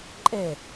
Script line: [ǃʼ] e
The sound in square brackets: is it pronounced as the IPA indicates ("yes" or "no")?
yes